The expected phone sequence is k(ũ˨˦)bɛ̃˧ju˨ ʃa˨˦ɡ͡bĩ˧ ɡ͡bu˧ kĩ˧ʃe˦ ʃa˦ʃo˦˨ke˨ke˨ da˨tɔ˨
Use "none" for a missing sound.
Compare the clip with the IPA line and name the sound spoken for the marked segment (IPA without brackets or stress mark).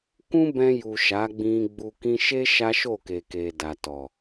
ũ˦